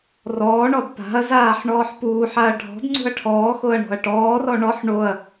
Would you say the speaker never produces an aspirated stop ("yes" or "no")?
no